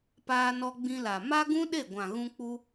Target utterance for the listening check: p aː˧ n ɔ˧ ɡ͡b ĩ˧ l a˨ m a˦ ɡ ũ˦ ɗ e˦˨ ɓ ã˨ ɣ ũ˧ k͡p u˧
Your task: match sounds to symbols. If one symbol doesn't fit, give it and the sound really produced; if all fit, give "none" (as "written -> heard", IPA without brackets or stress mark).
ɓ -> ɡʷ